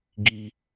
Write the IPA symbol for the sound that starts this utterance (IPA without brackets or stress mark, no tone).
ɡ